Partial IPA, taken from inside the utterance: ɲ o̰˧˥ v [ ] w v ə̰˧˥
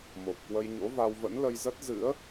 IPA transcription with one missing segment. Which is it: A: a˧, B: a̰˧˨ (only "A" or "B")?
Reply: A